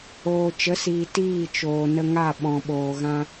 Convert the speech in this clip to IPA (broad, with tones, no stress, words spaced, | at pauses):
oː˨t͡ʃə˨˦siː˨ tiː˦˨t͡ʃoː˨ nə˧ŋa˦˨ ɓɔ̃˨ ɓoː˨ɣã˧